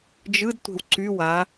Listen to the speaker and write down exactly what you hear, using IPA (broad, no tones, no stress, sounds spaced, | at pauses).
d͡ʒ ɯ d tʷ e̤ w ǀ y w a